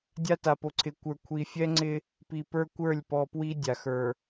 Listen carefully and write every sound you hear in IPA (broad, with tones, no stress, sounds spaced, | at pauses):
dʲ a˦ t a˨ p o˨ ǀʰ ɪ˨ kʷ ə˞˨ kʷʰ i˨ fʲ ɛ˦ ŋ͡ǀ ɪ˦ | p i˨ p ə˞˦ kʷ ə˞˦˨ lʲ p ɔ˨ p w i˦ dʲ a˨ x ə˞˨